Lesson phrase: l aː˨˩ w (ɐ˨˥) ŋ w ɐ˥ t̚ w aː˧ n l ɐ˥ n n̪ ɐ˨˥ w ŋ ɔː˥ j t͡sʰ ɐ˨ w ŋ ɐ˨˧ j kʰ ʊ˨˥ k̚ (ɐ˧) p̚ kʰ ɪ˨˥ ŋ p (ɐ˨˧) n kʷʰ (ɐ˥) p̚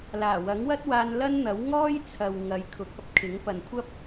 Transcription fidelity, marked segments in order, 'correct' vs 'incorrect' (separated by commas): correct, correct, incorrect, correct